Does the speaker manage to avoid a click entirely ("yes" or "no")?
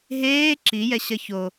no